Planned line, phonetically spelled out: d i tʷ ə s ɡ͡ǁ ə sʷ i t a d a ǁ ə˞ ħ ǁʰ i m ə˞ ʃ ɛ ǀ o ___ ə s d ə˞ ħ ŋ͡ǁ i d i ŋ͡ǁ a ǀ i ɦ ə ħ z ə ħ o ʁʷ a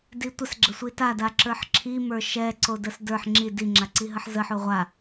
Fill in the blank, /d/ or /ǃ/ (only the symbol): d